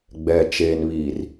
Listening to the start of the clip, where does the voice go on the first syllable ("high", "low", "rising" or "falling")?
low